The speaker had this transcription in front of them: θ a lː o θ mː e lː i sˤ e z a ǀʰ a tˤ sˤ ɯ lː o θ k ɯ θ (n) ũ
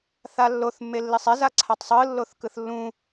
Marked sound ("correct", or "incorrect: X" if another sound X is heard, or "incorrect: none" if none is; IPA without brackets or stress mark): incorrect: lː